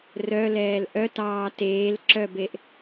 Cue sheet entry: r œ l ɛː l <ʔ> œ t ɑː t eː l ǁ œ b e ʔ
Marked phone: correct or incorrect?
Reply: correct